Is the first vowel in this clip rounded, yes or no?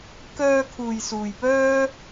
yes